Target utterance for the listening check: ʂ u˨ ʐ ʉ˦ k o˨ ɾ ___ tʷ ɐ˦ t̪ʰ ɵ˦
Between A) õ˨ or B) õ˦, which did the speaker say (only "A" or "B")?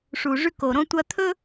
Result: B